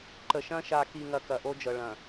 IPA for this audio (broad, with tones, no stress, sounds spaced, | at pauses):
ǃ ə˨ ʃ ɐ̃˦ ʃ a˨ k i˨ ŋ ɐ˨ k ɐ˨ ʔ o˦ d͡ʒ ɤ˨ ɭ ɐ̃˨